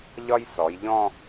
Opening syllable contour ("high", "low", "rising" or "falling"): high